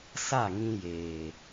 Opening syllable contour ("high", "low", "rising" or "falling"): falling